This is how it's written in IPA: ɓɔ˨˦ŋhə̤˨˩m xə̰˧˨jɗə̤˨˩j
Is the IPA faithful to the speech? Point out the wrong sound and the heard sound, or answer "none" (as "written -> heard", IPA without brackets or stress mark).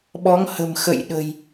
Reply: none